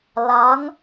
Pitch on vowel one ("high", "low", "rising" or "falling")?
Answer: rising